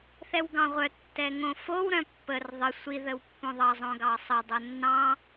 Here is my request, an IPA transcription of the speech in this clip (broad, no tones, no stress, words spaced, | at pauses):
θɛwɡɑ̃ʁʷœ tːɛŋõfow ɾœ̃pːər ðˤə sʷi ðəwpːõðˤɑ zˤõɡɑsˤə dˤonːɑ̃